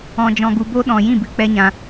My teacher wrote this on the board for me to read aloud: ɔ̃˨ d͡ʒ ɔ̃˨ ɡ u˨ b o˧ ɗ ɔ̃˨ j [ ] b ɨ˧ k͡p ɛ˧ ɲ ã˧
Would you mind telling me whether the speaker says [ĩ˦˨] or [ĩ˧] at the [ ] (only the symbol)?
ĩ˦˨